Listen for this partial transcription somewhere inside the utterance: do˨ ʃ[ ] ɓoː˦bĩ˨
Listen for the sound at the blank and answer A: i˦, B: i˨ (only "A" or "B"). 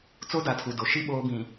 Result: A